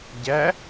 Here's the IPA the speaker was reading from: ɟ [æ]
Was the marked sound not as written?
no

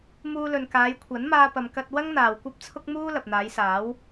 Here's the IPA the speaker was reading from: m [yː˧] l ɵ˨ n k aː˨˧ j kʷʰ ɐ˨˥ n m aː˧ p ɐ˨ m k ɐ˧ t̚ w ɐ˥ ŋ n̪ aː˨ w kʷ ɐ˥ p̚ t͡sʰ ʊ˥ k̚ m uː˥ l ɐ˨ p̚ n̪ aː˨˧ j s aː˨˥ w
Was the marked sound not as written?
yes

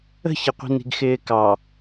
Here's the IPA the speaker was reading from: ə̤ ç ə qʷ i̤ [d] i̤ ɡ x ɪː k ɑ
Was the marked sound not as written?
yes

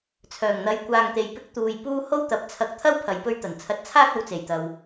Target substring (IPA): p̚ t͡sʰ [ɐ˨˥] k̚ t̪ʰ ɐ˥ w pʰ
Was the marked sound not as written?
yes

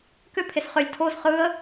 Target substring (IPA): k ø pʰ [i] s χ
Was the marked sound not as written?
yes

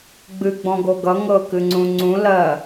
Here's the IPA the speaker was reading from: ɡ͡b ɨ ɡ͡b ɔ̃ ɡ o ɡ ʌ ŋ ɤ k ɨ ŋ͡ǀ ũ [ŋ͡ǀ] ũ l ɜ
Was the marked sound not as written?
no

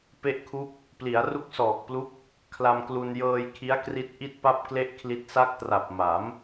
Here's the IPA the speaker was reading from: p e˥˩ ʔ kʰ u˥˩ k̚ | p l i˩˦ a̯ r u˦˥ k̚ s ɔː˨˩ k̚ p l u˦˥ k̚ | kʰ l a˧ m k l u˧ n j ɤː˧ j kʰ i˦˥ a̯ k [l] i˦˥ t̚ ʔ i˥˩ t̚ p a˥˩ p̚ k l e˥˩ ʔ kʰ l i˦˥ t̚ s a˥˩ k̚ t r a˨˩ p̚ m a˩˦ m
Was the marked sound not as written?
yes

